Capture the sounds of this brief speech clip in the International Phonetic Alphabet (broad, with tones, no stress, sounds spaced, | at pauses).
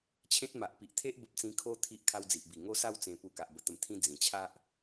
t͡ɕʰ ẽ˦ t̚ m a˨ ʔ p i˨ ʔ t̪ʰ e˦ ʔ b ə˦ p̚ t͡s ĩ˦ kʰ o˦ t̪ʰ i˦ ʔ kʰ a˦ w d͡z i˨ ʔ b i˨˩ ŋ o˦ s a˥˧ w t͡s ẽ˧ p u˧ k a˨ ʔ b ə˧ t̪ ə˧ m t̪ʰ ĩ˦ d͡z ĩ˨˩ t͡ɕʰ a˦ ʔ